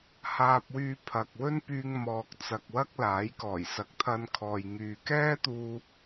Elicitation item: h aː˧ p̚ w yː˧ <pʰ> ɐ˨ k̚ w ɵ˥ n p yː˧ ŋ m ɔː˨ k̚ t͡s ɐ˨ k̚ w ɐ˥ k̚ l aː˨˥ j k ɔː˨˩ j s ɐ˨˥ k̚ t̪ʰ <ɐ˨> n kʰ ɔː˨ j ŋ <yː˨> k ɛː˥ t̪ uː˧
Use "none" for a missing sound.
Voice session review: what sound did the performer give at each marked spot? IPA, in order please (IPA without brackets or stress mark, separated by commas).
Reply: pʰ, ɐ˧, yː˨